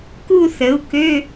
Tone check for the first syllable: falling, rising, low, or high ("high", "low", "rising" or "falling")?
falling